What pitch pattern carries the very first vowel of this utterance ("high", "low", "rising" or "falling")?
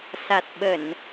low